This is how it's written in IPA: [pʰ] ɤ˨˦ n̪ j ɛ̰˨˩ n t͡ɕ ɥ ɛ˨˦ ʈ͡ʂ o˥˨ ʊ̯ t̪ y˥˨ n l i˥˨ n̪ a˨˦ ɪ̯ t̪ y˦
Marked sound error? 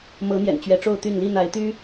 yes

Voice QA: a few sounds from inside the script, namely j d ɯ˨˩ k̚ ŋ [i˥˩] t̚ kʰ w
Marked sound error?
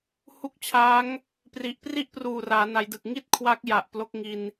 no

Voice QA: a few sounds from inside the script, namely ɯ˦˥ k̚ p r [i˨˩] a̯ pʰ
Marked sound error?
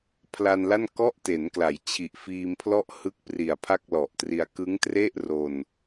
no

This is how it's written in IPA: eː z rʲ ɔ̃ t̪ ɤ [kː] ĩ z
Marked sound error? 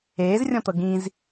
yes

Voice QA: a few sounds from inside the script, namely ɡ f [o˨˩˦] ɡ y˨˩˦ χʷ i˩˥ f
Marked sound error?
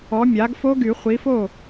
yes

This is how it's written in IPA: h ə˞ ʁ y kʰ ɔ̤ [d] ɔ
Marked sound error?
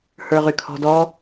no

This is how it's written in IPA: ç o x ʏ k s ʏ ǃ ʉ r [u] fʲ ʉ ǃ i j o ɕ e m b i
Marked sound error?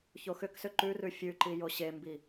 yes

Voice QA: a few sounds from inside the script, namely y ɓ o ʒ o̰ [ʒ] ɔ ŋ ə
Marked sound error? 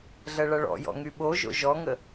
no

